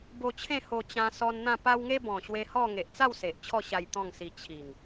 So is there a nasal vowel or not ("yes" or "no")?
yes